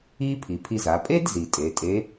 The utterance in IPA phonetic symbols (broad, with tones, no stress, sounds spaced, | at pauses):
i˥ pʰ i˩ pʰ i˧ z a˩˧ pʼ e˥ d z i˩ tʼ e˩˧ tʼ e˧˥